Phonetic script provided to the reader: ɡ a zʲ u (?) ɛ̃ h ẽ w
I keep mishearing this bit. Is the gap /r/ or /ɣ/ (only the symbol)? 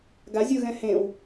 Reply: ɣ